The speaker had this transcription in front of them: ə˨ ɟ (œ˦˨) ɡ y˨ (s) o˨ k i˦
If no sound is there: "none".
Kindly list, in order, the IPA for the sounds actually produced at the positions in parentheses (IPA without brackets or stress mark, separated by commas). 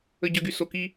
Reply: œ˨, s